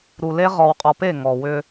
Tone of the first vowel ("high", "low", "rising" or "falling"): low